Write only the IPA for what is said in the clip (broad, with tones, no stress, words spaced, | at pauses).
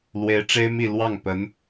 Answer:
lwe˧˥ɪ̯ʈ͡ʂe˥ɪ̯mi˥˧ lwɑ˥˩ŋpə˧˥n